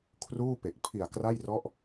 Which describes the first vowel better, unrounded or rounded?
rounded